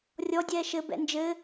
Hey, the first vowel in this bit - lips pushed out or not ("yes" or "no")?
yes